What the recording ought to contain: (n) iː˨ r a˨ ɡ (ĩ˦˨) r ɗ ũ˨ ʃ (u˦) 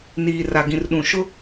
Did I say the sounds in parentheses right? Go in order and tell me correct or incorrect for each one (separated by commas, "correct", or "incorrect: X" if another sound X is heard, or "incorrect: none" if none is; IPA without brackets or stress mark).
correct, incorrect: ĩ˨, incorrect: ʊ˦